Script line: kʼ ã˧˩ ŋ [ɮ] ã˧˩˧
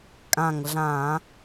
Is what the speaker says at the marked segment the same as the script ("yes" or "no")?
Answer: yes